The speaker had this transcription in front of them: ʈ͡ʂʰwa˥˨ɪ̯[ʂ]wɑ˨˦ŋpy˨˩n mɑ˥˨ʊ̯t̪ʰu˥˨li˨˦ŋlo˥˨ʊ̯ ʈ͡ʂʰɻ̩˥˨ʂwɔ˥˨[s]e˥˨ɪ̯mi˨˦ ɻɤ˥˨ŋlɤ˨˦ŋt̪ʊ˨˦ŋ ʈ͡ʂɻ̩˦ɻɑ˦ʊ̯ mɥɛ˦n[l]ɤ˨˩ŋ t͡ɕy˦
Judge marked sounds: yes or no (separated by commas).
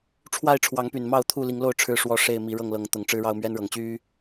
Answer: no, no, no